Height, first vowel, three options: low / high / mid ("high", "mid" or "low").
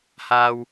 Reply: low